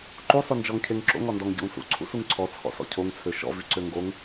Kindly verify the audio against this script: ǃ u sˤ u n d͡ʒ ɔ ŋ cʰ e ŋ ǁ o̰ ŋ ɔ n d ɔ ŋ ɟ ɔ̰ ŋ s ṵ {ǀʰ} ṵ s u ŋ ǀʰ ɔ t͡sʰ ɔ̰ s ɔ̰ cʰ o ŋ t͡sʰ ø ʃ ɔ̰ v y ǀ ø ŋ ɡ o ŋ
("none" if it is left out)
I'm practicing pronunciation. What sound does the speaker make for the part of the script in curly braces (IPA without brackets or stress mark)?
ǀʰ